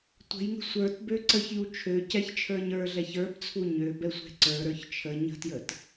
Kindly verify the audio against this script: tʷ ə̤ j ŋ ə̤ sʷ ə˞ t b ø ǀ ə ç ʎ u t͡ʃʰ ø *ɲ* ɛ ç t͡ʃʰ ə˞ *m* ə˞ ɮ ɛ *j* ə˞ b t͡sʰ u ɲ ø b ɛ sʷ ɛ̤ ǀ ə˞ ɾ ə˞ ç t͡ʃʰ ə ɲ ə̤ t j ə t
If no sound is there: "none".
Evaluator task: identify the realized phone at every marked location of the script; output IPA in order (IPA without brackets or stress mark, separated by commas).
c, ɲ, ç